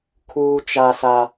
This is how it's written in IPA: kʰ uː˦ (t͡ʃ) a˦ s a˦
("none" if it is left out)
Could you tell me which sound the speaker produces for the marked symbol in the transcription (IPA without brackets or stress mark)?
t͡ʃ